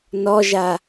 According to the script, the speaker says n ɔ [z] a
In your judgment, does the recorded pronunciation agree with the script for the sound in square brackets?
no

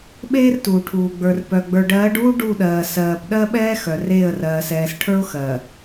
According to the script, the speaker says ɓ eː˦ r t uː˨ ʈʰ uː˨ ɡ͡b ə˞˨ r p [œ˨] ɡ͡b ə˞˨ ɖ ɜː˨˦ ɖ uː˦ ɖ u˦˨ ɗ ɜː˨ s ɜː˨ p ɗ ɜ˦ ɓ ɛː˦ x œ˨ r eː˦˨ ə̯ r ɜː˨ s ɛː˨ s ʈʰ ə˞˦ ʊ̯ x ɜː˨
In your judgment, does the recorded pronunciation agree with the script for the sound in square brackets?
yes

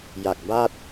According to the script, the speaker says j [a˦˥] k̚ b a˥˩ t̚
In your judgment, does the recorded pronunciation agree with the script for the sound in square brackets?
no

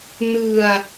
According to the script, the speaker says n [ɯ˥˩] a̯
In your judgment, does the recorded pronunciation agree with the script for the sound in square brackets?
no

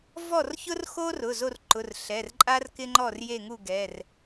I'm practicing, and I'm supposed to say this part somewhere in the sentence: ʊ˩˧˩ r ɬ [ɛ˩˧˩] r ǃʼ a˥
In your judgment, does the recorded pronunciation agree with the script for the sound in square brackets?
yes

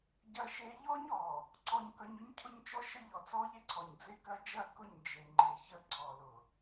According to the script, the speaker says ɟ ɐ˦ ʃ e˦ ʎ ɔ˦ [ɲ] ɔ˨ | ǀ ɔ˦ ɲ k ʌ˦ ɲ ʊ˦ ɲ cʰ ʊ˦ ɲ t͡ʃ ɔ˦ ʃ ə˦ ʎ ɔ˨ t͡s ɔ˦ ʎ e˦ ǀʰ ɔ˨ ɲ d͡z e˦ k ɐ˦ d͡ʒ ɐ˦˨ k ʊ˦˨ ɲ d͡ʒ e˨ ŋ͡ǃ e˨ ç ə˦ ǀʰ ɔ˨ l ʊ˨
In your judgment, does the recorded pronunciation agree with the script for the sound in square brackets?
yes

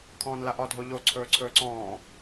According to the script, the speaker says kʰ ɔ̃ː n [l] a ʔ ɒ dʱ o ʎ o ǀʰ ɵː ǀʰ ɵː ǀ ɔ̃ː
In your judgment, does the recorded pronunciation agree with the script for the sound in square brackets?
yes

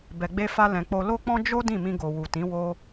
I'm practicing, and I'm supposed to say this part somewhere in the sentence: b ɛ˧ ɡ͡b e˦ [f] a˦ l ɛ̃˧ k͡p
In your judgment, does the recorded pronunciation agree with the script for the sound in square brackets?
yes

